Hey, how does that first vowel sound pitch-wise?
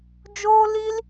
high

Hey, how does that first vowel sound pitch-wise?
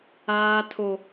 high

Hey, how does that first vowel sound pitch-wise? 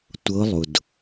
rising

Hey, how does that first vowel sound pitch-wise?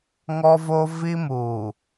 high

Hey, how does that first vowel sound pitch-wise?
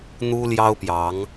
high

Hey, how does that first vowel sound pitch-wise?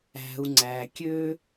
low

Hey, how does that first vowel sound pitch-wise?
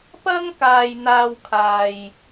high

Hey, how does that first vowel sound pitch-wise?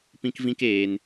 high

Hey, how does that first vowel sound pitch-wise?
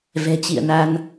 low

